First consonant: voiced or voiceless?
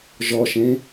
voiced